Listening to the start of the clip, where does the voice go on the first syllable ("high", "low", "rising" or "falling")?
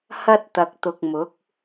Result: high